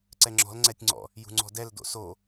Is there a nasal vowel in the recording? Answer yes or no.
no